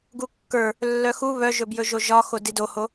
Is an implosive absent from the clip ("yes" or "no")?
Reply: yes